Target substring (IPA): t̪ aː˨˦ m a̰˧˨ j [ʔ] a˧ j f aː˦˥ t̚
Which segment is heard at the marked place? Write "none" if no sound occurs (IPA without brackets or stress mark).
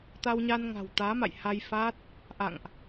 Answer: h